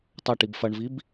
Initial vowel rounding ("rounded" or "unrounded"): unrounded